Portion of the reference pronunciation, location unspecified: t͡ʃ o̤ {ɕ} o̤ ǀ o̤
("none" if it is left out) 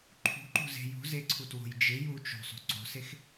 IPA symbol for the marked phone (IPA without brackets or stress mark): sˤ